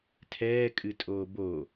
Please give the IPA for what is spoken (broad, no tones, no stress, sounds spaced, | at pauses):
tʰ ɛː kʼ ɨ tʼ oː b o